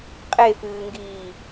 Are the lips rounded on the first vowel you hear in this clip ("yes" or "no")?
no